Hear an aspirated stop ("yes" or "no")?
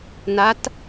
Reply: no